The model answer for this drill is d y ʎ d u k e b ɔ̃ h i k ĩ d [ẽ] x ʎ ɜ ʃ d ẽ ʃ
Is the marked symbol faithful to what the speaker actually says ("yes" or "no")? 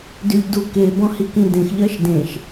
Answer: yes